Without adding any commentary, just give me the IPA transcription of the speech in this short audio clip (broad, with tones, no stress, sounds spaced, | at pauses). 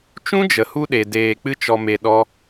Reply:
t͡ʃ ũ˦ d͡ʒ ə˨ h u˧ ɗ e˨ d eː˧ k͡p ɨ˦ t͡ʃ ɔ˧ m e˧ ɗ ɔ˦